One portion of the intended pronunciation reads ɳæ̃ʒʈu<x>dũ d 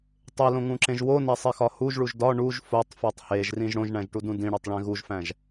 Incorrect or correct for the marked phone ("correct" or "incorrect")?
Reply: incorrect